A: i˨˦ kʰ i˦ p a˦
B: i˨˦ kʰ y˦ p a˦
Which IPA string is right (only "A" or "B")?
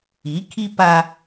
A